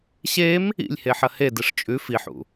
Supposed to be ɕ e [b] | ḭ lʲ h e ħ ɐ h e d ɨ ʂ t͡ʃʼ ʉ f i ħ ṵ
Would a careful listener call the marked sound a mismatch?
yes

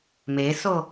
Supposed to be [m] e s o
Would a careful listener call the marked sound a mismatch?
no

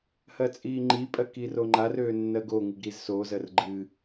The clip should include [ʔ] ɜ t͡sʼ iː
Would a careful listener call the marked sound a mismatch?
yes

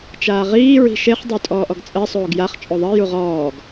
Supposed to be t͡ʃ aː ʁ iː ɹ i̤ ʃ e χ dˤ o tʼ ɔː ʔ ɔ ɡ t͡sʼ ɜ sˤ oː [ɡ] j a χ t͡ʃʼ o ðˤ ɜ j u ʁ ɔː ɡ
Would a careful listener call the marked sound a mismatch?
no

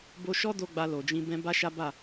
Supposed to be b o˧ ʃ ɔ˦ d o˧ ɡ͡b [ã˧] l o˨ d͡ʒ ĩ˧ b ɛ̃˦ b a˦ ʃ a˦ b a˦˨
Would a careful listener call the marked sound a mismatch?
yes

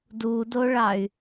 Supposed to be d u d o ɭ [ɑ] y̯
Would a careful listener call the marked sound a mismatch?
no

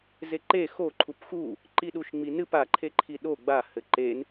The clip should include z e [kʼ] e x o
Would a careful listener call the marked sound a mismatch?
yes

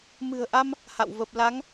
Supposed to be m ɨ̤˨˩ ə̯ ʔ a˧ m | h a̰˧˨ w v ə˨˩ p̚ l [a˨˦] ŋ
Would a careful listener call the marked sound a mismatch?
no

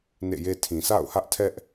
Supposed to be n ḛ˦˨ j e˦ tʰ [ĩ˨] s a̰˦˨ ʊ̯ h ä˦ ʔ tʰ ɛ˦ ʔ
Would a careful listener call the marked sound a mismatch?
no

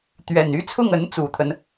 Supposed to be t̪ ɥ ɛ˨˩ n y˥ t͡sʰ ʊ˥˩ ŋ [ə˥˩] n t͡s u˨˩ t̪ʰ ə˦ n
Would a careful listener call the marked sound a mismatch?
yes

